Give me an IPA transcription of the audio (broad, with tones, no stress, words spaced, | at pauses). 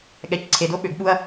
ɠɛ˨cǀʰe˨d o˦ ɓø˨ɡɓu˧ɐ̯